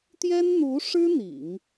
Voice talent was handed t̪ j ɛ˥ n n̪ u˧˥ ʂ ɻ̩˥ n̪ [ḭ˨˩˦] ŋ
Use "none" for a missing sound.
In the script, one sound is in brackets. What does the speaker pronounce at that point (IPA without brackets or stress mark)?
ḭ˨˩˦